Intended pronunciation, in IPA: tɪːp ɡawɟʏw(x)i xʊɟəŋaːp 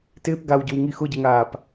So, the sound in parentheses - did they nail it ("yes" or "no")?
no